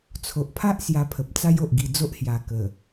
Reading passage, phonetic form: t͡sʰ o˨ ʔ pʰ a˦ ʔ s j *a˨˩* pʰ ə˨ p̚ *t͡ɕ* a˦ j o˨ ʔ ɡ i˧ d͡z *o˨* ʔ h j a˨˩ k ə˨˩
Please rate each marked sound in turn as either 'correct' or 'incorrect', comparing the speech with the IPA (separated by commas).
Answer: incorrect, incorrect, incorrect